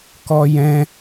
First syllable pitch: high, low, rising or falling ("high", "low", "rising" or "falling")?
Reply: high